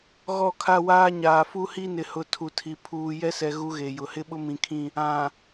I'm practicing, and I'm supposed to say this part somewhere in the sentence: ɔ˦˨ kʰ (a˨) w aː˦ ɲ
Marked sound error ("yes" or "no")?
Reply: yes